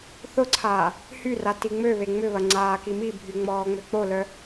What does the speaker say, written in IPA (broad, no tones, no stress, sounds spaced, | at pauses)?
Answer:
θ ʊ ǀʰ aː | h y r a t i ŋ͡m ø β e ŋ͡m ʏ β ɐ ŋ͡ǀ aː k i m i bʱ y ŋ͡m ɔː ŋ͡m ø k͡p o l œ